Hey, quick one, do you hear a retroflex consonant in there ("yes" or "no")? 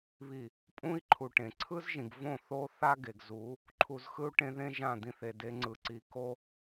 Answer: yes